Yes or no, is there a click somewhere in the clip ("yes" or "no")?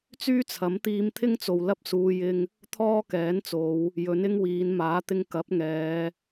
no